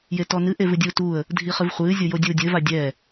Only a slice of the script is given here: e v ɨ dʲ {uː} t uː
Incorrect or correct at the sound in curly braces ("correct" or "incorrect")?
correct